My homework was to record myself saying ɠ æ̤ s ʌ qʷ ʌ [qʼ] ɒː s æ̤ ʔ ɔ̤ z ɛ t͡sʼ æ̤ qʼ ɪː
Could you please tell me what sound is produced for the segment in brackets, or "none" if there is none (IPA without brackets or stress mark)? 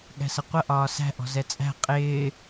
ʔ